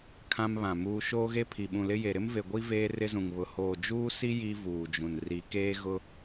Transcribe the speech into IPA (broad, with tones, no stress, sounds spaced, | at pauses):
kʰ ã˦ m β ã˨ m uː˦ ʃ oː˦ ɣ e˦ pʰ i˨ ɓ ũ˨ l ɪ˦ j e˨ ɾ ɪ˦ m v e˨ ɡʷ i˦ v eː˦ r ɪ˦ z ũ˨ ŋ β ʊ˨ h oː˨ d͡ʒ uː˦ s i˦ j i˦ v uː˨ d͡ʒ ũ˨ n r i˨˦ k eː˦ ɣ ʊ˦